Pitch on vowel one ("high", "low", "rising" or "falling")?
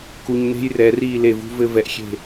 low